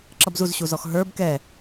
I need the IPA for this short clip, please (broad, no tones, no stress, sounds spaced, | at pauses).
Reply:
ǁ ʌ b z u z ɕ u z ɔ x ɦ ə˞ b k ɛ